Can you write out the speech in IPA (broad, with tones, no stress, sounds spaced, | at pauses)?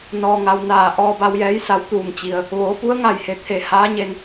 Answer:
n ɔː˩ ŋ a˩ w n aː˧˩ ʔ ɔː˧ b a˧ w j ɛː˧˥ j s a˧˥ w t̪ uː˧˩ ŋ t͡ɕ i˩ ə̯ | ʋ oː˩˧ p u˧˥ ə̯ ŋ a˧˩ j h e˩ t̪ʰ e˧˩ h aː˧˥ ɲ e˧ n